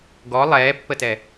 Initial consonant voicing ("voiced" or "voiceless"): voiced